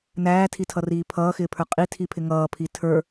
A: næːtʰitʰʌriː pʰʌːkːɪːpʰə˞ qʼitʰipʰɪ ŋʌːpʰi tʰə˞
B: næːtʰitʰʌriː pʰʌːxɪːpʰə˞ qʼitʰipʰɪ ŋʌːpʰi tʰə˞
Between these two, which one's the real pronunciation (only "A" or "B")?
B